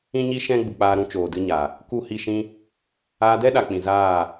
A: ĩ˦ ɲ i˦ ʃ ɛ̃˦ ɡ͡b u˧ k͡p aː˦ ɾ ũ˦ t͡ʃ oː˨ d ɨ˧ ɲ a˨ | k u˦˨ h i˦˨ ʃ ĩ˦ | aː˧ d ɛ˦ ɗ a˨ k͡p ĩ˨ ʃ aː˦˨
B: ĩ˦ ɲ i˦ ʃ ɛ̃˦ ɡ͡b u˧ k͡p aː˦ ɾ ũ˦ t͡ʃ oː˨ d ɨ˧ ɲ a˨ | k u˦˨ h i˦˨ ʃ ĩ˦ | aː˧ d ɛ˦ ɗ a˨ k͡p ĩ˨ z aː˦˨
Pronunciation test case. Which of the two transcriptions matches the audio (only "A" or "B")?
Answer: B